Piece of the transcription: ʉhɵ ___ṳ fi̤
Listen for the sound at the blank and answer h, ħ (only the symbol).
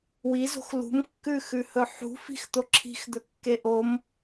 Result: ħ